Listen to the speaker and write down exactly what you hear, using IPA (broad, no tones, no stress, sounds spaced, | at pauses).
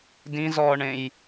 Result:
d ĩ z ɔː ɳ ẽ j